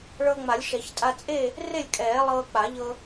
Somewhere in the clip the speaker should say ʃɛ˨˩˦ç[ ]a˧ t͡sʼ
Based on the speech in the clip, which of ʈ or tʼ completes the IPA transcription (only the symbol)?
tʼ